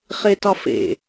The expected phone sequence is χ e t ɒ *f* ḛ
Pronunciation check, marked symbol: correct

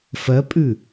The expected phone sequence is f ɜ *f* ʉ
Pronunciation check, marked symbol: incorrect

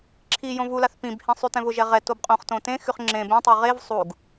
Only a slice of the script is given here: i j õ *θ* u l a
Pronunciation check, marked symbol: incorrect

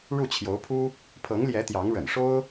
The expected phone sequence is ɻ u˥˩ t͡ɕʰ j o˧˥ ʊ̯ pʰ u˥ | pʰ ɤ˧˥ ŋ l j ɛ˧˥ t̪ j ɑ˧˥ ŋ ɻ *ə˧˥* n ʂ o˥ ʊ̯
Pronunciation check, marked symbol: incorrect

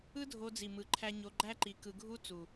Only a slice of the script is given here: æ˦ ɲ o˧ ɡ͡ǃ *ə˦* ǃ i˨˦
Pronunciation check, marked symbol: incorrect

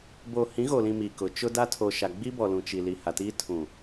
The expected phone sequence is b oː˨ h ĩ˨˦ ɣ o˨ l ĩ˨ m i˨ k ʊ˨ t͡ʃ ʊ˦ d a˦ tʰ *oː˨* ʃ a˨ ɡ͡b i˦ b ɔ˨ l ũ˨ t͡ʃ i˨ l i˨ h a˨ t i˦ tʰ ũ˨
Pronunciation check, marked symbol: incorrect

